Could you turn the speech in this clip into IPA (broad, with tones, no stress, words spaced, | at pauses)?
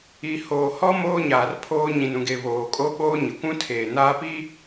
i˨hoː˨hɔ˦ moː˦ɲaː˨rpʰoː˦ ɲĩ˨nũ˨ɡe˨ βoː˨kʼo˦ɓoː˦ ɲɪ˨kʷũ˦tʰeː˨ naː˦pi˦